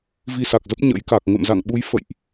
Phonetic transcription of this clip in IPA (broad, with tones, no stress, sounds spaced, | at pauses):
v i˧ s a˨˩ k̚ z ə˦˥ p̚ ɲ ə̰˧˥ j k a˨˩ k̚ ŋ ə̰˧˨ m z a̰˧˨ ŋ ɓ u˨˦ j f ə̰˧˨ j ʔ